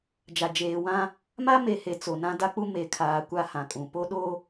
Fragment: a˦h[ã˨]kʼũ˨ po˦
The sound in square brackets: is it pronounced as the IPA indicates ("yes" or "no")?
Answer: yes